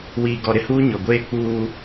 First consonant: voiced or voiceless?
voiced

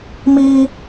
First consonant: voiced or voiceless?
voiced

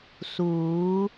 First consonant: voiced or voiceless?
voiceless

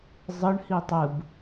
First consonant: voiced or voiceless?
voiced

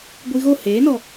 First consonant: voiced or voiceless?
voiced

